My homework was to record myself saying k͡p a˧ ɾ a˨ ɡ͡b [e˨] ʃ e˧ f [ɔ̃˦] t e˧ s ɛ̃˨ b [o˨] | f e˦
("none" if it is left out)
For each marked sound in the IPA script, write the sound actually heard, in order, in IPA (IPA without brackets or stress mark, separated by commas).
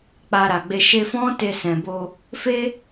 e˧, ɔ̃˦, o˧